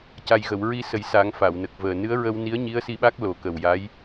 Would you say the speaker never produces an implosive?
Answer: no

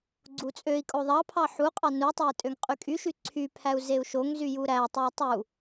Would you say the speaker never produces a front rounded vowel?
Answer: no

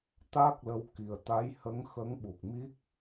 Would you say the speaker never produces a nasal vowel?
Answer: yes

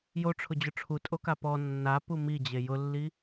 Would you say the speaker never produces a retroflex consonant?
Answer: no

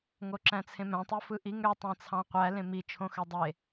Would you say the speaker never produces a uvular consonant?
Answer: no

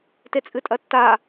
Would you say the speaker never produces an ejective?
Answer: no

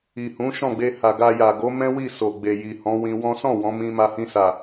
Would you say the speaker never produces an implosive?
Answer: yes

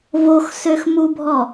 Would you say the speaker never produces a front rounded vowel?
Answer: no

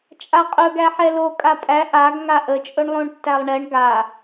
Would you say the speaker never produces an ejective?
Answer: no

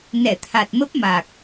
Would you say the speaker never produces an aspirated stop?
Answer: no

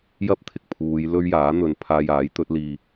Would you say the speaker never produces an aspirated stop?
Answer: no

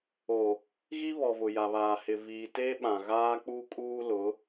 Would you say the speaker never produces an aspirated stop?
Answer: yes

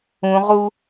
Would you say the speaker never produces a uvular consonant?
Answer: no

